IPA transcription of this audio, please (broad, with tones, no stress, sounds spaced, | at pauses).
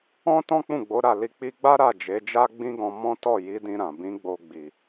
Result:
ɔ̃˦ t ɔ̃˦ k͡p ũ˦˨ ɡ͡b o˨˦ ɾ a˦˨ l i˧ k͡p i˧ ɡ͡b a˦ ɾ a˦˨ d͡ʒ e˨˦ d͡ʒ a˦ ɡ͡b ĩ˦ ɡ ɔ̃˧ m ɔ̃˦ t ɔ˦˨ j i˨˦ d ĩ˧ ɾ ã˨ b ĩ˨˦ ɡ͡b o˧ ɡ͡b i˨